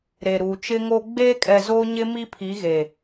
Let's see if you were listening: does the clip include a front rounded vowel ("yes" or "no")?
no